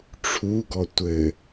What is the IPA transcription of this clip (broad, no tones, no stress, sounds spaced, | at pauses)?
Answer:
ʈ͡ʂʰ u ɡ ɔ tʷ ɘ